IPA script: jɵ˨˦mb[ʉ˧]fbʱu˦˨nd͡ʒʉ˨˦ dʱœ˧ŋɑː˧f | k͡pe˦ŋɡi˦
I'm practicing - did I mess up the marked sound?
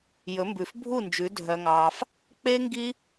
yes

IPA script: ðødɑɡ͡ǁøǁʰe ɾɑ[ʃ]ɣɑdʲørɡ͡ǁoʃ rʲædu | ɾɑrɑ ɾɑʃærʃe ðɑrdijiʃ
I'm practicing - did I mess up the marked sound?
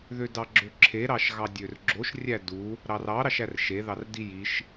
no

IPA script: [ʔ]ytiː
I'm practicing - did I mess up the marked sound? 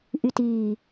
no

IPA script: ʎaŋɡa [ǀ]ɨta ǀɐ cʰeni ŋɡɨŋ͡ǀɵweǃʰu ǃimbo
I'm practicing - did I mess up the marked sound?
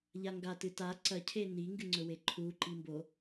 yes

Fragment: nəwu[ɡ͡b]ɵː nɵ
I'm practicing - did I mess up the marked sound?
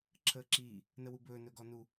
yes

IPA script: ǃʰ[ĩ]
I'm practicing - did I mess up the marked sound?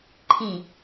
no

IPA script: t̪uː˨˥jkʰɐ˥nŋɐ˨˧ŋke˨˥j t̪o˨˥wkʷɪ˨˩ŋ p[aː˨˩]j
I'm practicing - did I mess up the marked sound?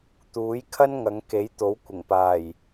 no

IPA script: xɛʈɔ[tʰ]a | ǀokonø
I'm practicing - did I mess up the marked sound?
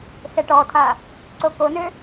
no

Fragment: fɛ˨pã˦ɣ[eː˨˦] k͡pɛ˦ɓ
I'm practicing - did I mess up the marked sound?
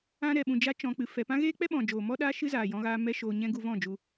yes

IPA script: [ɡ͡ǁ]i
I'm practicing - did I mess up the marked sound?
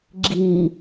no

